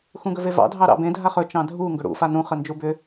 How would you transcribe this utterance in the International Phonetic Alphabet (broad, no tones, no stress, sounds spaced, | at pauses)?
x ũ ɡ ɵ v e v ɑ̰ dʱ ɑ ɾ ɑ̰ b ẽ dʱ a χ ɵ t͡ʃ ɑ̃ dʱ u ŋ ɡ ɵ ɽ ṵ f a n ũ χ ə n d͡ʒ u b ʏ